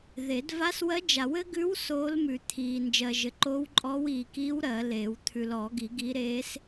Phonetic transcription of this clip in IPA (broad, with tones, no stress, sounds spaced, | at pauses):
ð e˨˩˦ d v a˧˥ s w ɜ˧˥ d͡ʒ a˨˩˦ w ɘ˧˥ ɡ ʉ˧˥ w s oː˧˥ l m ʉ˨ t̪ʰ iː˨ n d͡ʒ ɜ˨ ʒ ɘ˨˩˦ ǃ o˧˥ w ǃʼ ɔ˧˥ w iː˨ k iː˧˥ w ɾ ɜ˨˩˦ l eː˨˩˦ w t̪ʰ ʉ˨ l ɔ˨˩˦ ɡ i˨˩˦ ɡ i˧˥ ɾ eː˧˥ s